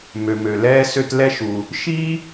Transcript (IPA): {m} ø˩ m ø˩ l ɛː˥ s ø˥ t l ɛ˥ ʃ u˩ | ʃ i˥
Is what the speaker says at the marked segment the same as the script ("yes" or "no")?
yes